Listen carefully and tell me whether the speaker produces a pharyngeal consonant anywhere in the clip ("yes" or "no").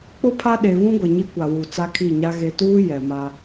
no